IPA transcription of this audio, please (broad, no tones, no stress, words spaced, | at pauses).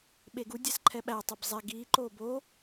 ɓeɡu dʲɛsǃʰɛɓæ tˤebzˤɛ ɡiː ǃoːbo